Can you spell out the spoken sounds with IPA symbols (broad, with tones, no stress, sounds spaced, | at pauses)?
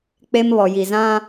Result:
k͡p e˦ m β ɔ˨ j i˨ z ã˦